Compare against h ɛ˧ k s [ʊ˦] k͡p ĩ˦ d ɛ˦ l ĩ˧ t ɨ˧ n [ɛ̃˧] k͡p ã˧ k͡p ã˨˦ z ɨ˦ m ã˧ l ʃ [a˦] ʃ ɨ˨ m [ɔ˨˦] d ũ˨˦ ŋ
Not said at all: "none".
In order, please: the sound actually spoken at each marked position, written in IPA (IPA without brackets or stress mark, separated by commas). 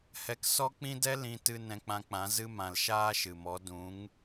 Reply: ɔ˦, ɛ̃˧, aː˦, ɔ˨˦